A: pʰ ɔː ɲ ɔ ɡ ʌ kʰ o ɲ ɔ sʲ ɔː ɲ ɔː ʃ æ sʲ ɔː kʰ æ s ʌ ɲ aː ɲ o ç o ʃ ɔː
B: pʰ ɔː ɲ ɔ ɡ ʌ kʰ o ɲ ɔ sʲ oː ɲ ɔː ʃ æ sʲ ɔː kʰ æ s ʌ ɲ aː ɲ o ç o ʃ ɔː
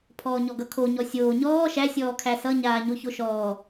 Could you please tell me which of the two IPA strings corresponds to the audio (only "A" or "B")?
B